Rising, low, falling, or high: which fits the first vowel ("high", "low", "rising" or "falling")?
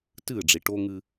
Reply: falling